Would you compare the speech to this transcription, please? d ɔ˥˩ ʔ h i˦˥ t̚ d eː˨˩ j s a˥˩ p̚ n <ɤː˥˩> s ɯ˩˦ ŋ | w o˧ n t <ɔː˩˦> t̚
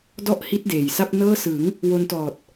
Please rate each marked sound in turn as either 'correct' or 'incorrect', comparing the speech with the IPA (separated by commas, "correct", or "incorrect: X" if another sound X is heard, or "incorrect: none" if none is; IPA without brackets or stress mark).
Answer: correct, incorrect: ɔː˨˩